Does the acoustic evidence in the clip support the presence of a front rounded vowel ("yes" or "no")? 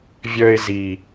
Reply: yes